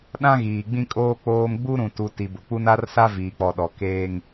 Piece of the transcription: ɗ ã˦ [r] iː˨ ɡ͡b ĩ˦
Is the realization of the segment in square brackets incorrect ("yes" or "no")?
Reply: yes